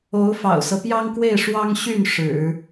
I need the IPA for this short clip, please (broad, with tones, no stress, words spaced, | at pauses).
o˧˥ʊ̯fɑ̰˨˩ʊ̯sɤ˦pjɑ˥ŋ kwe˥˩ɪ̯ʂwɑ˥ŋɕy˥˩n ʂɻ̩˨˩˦